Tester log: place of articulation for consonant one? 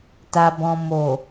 alveolar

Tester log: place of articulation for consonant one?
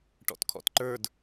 retroflex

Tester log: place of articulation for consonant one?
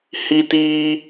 glottal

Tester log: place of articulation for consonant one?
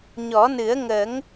palatal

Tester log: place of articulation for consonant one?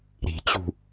alveolar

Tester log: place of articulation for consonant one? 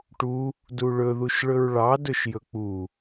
retroflex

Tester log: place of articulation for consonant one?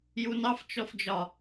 palatal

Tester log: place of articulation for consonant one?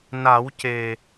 alveolar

